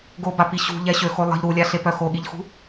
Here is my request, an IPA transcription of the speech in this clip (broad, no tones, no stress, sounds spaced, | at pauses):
ɡ o b a p i ɕ ṳ ʎ ɛ ɕ ø x o lˠ ə̤ ʎ ɾ u lʲ a ɬ e p œ x o ɠ i ʎ x ṳ